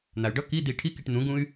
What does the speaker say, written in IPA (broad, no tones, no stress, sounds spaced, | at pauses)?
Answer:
n̪ a y̯ ɖ ʌ k i d̪ i ʈʰ i k i ʈ n̪ ũ ɡ ũ y̯